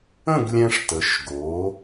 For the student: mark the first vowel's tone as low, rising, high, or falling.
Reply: falling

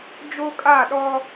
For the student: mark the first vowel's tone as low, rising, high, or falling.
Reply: high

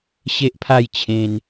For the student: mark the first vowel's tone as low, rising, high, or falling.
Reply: high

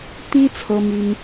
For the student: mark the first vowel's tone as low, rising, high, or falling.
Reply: high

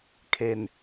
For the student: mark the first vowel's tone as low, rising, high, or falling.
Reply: low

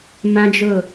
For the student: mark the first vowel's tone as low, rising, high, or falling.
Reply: high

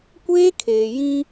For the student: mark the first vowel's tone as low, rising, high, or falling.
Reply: high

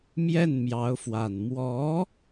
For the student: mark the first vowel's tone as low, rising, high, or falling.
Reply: falling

